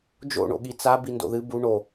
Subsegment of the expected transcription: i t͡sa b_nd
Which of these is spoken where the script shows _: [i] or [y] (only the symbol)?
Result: i